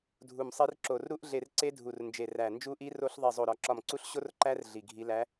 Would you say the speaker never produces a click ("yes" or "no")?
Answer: no